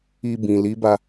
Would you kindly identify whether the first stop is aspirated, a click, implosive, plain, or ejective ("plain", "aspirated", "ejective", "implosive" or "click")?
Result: plain